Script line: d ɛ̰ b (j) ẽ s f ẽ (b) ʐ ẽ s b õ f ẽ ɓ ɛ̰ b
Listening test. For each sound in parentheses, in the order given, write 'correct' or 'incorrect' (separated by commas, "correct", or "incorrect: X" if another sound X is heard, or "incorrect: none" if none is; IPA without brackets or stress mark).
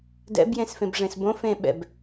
correct, correct